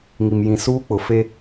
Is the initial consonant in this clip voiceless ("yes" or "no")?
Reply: no